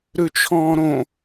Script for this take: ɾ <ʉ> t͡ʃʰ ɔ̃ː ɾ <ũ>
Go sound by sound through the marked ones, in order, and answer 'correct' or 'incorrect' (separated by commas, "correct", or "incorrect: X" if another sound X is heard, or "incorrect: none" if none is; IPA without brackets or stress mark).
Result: correct, incorrect: õ